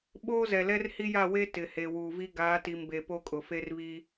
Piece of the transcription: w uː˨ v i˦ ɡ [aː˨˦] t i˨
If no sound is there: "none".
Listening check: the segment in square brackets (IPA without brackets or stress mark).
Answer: aː˨˦